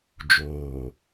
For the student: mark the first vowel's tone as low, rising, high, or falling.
low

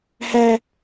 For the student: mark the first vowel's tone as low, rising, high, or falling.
high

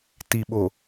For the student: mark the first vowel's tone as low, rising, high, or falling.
low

